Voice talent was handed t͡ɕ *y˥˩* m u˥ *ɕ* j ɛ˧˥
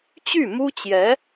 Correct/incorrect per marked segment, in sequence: correct, incorrect: t͡ɕ

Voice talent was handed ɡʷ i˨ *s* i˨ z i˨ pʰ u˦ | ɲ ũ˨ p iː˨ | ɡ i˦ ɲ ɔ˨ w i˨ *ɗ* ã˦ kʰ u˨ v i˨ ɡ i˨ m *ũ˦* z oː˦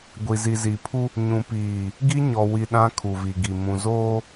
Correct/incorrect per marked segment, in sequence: incorrect: z, correct, incorrect: ũ˨

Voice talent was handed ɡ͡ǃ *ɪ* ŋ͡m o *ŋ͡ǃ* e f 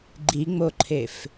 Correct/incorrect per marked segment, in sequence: incorrect: i, incorrect: ǃʰ

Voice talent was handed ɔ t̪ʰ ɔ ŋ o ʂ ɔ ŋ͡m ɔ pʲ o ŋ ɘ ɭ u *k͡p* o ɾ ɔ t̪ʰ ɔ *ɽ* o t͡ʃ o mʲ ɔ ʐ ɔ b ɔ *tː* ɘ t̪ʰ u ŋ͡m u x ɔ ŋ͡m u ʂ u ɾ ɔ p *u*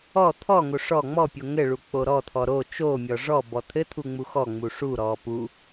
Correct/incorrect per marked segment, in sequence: correct, incorrect: ɾ, incorrect: t̪ʰ, correct

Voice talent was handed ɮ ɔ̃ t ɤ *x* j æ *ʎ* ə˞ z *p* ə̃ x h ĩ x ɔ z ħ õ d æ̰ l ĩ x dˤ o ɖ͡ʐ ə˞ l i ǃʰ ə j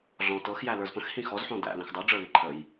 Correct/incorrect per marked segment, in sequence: correct, incorrect: l, correct

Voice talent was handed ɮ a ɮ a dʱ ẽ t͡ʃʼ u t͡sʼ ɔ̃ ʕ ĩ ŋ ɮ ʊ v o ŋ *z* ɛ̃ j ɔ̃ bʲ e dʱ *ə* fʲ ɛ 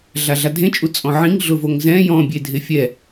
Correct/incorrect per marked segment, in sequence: correct, incorrect: ɪ

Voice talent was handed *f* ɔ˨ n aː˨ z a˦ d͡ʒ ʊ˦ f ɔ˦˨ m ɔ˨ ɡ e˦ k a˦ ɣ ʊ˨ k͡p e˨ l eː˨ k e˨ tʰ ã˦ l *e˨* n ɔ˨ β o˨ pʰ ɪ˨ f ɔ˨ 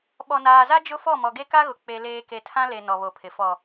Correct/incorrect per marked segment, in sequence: incorrect: ɓ, correct

